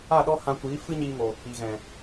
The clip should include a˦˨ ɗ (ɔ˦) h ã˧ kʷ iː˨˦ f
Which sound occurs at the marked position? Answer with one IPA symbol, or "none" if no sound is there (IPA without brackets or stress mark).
ɔ˦